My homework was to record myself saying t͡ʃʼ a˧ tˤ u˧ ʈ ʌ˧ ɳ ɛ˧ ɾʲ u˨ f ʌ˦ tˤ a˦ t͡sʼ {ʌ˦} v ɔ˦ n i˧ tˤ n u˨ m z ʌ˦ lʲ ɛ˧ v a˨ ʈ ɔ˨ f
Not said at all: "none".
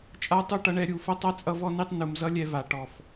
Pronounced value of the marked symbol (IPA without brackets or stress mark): ʌ˦